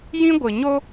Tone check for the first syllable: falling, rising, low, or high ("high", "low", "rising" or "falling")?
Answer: high